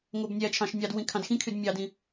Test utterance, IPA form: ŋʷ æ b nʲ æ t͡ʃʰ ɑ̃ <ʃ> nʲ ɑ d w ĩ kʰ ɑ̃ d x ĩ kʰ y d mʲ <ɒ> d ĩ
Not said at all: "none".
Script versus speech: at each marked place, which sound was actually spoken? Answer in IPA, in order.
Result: ʃ, ɑ

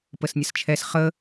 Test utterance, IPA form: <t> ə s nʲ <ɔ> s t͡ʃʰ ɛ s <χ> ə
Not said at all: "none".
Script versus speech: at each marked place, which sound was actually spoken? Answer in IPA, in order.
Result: p, ə, χ

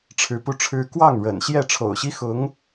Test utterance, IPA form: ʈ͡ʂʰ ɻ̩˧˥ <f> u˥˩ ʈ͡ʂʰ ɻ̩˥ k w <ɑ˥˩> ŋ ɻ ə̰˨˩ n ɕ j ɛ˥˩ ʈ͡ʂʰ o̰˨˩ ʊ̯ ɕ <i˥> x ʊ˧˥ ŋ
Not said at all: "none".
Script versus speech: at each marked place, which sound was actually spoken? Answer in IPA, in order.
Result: p, ɑ˥˩, i˥

